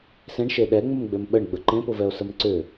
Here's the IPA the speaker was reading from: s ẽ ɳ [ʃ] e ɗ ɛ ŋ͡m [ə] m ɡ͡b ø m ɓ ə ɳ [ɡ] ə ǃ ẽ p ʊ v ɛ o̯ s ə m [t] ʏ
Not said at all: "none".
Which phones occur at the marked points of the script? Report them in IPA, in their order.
ʃ, ə, ɡ͡b, ǀ

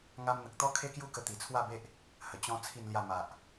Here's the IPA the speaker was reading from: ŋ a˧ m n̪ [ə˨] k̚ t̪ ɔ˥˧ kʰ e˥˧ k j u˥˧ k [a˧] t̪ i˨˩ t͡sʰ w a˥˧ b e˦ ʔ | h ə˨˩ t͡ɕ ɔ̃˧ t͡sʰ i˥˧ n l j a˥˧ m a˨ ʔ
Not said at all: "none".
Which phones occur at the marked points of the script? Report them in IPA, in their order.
ə˨, ə˧

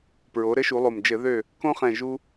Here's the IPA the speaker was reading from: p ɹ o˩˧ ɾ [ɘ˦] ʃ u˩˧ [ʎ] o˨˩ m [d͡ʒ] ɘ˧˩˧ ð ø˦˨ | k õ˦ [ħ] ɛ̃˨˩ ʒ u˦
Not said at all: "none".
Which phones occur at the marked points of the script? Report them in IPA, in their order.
ɘ˨˥, lˠ, d͡ʒ, χ

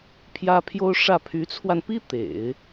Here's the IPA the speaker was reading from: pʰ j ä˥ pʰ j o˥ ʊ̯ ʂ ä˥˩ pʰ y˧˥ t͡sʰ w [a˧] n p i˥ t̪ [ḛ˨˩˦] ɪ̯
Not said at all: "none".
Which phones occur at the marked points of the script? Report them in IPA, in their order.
a˧, ḛ˨˩˦

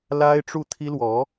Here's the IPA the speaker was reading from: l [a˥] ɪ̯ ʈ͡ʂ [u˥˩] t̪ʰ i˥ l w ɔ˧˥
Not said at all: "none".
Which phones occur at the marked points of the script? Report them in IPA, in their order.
a˥, u˥˩

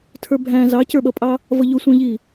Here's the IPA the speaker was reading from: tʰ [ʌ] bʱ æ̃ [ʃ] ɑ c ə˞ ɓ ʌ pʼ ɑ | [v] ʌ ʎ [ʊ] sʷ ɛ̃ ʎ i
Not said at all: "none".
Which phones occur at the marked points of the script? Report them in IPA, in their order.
ə˞, z, v, ʊ

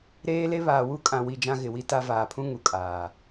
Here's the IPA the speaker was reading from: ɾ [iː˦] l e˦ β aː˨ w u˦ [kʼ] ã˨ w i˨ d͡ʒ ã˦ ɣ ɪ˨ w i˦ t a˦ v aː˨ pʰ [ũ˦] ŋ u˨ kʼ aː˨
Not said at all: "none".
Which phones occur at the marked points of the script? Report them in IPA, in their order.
eː˦, kʼ, ũ˦

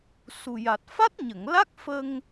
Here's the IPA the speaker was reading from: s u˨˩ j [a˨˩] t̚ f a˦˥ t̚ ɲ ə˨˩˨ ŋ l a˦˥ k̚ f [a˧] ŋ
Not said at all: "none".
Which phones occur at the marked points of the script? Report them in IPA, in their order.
a˨˩, ə˧

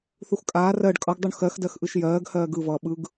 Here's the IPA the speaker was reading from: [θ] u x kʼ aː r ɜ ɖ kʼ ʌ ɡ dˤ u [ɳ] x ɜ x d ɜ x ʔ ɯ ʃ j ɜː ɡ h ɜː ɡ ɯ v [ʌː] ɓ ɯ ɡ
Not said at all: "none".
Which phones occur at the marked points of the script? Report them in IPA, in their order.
θ, ɳ, ʌː

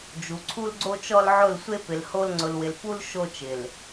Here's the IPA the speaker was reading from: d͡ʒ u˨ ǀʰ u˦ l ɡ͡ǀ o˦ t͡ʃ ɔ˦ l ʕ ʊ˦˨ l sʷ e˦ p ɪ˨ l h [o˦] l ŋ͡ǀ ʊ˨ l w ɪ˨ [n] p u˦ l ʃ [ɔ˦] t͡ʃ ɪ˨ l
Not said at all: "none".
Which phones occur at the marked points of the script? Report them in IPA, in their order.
o˦, l, o˦

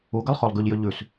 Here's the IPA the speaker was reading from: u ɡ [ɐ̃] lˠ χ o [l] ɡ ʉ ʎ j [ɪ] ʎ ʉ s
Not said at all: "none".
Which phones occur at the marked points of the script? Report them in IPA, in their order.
ɐ, lˠ, ʏ

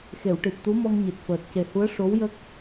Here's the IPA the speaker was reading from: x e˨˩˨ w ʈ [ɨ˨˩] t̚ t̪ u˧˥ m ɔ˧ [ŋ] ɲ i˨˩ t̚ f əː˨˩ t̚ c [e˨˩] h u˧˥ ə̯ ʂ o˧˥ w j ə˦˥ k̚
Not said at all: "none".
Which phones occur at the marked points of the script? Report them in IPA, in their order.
i˨˩, ŋ, e˨˩

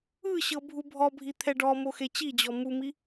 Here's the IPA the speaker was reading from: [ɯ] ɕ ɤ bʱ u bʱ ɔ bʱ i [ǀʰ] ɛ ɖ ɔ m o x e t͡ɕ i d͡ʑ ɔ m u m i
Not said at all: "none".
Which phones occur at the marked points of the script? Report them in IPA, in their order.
ɯ, t̪ʰ

